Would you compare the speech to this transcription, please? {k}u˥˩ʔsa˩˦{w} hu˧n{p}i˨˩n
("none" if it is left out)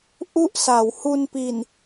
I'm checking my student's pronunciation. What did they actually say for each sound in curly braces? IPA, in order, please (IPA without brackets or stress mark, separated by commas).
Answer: ʔ, w, p